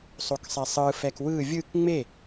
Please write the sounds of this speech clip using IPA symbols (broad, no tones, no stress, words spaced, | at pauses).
sˤoksˤɛsˤɯ fɛkwɯ vʲɯk ŋ͡me